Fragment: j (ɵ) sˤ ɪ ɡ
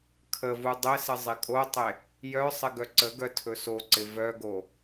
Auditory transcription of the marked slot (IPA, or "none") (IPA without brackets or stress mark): œ